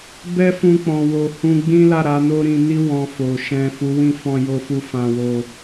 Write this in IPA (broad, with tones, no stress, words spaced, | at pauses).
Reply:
bɛ˦fũ˧k͡pɔ̃˨ wo˨ hũ˧ ɡ͡bĩ˦la˦˨ɾa˨˦ no˦ɾĩ˧ni˦ wɔ̃˧fo˨ ʃɛ̃˨ fu˨˦wĩ˦˨ fɔ̃˧jo˧fu˧ fã˧wo˧